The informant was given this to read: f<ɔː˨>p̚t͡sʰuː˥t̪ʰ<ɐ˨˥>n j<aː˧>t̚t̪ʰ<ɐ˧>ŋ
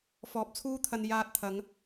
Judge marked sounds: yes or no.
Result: yes, no, yes, no

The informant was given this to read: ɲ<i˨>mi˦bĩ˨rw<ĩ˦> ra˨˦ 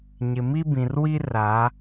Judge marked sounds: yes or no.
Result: no, no

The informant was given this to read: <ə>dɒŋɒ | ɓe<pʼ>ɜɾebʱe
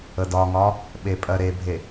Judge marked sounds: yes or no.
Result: yes, yes

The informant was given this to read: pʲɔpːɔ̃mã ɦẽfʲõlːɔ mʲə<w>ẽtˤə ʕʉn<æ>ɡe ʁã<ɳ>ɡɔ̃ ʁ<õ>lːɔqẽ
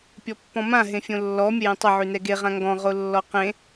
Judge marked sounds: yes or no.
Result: no, no, no, no

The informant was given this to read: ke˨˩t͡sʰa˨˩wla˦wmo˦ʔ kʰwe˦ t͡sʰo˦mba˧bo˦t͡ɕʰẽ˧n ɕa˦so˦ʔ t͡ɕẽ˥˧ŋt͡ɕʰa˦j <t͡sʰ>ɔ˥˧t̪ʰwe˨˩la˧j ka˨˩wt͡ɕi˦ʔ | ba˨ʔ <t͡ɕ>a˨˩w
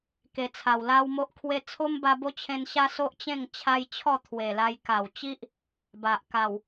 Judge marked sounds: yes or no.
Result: no, no

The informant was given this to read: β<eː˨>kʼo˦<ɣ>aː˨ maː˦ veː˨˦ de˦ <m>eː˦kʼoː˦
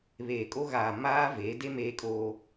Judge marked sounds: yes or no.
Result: yes, yes, yes

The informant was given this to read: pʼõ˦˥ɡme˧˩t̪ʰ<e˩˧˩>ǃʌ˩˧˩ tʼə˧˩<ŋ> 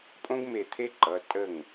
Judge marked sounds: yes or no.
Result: no, yes

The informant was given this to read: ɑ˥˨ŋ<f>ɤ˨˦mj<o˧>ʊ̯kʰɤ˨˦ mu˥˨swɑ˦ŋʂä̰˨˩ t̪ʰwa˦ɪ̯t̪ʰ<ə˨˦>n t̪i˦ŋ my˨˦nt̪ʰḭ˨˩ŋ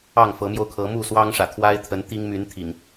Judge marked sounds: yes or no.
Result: yes, yes, yes

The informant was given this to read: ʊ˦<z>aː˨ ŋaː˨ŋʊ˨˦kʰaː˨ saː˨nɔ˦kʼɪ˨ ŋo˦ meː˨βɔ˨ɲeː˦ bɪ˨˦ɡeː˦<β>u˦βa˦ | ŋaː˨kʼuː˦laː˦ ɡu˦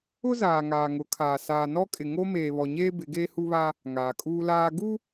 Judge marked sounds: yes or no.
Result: yes, no

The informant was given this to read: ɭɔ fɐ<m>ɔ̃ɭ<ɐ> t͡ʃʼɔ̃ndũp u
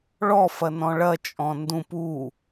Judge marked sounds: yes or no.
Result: no, yes

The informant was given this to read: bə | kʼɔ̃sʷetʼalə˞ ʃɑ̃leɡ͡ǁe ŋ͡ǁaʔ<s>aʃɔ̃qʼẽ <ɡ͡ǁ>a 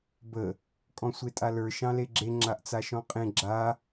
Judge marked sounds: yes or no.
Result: no, yes

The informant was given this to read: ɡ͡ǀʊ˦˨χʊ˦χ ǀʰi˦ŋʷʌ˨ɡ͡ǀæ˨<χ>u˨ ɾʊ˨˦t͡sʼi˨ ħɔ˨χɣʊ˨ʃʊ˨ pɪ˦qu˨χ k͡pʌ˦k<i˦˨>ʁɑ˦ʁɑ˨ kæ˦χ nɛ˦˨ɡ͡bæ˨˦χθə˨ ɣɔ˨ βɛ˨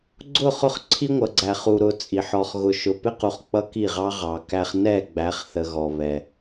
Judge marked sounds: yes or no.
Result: yes, yes

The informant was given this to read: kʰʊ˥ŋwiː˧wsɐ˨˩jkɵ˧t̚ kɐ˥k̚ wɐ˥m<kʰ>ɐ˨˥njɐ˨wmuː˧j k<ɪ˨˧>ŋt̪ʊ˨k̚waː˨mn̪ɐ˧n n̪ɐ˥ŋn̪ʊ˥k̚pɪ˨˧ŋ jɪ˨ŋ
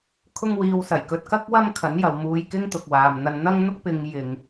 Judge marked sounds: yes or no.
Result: yes, no

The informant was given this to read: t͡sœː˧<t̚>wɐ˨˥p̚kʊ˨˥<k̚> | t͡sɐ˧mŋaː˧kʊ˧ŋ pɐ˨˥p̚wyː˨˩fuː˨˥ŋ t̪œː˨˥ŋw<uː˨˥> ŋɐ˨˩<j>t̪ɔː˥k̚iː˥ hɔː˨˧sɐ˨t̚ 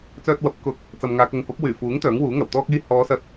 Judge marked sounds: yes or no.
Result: yes, yes, yes, no

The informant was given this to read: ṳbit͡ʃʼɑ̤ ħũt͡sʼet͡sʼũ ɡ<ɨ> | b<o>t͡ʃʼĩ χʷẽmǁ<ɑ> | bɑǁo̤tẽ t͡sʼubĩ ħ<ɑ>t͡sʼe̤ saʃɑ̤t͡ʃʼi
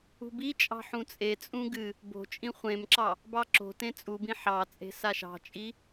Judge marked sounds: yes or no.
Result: yes, no, yes, yes

